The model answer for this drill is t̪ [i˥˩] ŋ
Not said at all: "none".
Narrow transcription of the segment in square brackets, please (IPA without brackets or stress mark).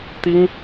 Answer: i˥